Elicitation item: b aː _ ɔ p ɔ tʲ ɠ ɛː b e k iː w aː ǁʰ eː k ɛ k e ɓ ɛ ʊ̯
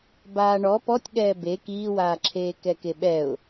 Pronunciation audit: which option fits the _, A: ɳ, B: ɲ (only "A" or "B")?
A